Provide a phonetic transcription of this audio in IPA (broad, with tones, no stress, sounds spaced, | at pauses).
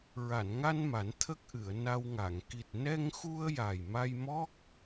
ɹ a˨˩˨ n ŋ a˧ n m a˨˩˦ n t̪ʰ ə˦˥ k̚ ʔ ɨ˨˩˨ ə̯ n a˧ w ŋ a˨˩˨ ŋ k i˨˩ t̚ n ɛ˧ ŋ x u˧ ə̯ j a˨˩ j m a˧ j m ɔ˦˥ k̚